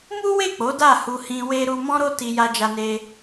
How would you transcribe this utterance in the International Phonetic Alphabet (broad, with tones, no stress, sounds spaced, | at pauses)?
m u˦ w e˦˨ k͡p o˨˦ d a˦˨ h u˧ h ĩ˧ w e˧ ɾ u˧ m ɔ̃˦ ɾ o˦ t i˧ j a˧ d͡ʒ a˧ n e˧